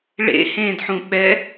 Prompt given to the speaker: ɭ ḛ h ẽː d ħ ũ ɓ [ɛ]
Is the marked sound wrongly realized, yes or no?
no